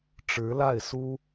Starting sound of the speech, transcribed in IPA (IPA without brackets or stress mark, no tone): ʈ͡ʂ